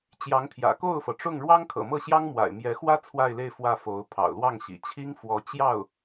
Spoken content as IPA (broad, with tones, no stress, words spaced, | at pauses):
t͡ɕjɑ˧˥ŋt̪ʰjä̰˨˩ ko˥˩ʊ̯fɤ˩ʈ͡ʂʊ˥˩ŋ ɻwɑ˥ŋkʰɤ̰˨˩mɤ˥˩ɕjɑ˥ŋ mwa̰˨˩ɪ̯mjɛ˧˥xwä˥ t͡sʰwa˥˧ɪ̯le˥˧ɪ̯ fwä˥˩fo˧˥ʊ̯ pʰɑ̰˨˩ʊ̯lwɑ˥˩ŋ ɕḭ˨˩ t͡ɕʰi˥ŋfwɔ˧˥ t͡ɕjɑ˥˩ʊ̯